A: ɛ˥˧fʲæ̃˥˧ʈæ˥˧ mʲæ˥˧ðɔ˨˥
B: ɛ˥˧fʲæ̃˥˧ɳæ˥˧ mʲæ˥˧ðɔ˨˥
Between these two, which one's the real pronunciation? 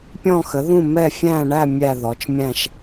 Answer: B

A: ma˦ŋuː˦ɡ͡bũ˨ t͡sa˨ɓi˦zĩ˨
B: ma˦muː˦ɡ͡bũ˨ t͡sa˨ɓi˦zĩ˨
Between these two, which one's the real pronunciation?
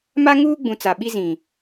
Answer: A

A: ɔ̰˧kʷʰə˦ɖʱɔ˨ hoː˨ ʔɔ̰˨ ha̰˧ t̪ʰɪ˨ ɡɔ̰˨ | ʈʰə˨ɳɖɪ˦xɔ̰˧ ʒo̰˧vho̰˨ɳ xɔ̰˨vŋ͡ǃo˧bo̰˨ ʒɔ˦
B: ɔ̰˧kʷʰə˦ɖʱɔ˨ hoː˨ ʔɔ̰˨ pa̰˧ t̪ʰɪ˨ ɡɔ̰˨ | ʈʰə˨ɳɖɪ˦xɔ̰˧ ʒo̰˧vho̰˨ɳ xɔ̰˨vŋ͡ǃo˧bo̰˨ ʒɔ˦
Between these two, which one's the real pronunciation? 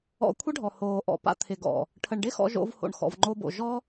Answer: B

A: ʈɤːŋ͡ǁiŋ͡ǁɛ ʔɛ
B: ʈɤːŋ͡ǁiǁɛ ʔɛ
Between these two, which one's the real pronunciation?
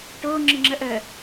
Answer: A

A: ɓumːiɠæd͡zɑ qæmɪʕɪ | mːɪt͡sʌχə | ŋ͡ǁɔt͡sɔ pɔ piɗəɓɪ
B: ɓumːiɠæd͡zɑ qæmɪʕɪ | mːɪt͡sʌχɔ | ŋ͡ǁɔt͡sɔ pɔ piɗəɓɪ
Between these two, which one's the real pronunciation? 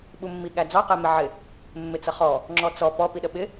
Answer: B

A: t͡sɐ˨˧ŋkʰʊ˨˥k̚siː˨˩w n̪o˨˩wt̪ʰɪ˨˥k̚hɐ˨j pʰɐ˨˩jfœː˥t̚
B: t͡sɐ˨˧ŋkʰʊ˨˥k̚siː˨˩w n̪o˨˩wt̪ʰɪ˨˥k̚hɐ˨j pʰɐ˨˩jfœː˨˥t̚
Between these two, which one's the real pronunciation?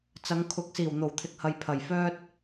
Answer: A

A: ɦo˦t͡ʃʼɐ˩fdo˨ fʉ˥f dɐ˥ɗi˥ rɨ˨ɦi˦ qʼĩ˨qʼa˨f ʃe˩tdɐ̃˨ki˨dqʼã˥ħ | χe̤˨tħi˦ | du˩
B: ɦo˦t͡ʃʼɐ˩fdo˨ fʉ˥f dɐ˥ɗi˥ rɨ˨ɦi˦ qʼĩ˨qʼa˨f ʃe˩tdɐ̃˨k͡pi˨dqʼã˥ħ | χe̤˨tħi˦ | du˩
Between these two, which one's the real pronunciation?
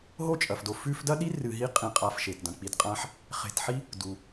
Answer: B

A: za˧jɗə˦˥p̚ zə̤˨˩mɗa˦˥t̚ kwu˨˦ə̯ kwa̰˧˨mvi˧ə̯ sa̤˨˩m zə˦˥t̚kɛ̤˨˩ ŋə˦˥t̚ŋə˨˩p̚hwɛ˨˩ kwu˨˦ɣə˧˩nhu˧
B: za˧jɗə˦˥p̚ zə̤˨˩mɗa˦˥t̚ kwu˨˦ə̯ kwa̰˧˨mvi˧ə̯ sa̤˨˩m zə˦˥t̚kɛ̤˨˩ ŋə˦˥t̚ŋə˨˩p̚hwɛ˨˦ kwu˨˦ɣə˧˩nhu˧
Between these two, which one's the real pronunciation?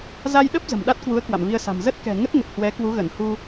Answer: B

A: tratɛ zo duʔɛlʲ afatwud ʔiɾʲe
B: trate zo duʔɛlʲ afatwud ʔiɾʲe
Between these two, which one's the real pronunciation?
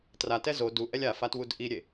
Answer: A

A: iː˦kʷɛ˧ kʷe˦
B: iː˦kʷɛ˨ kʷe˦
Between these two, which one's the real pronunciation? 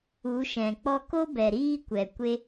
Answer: B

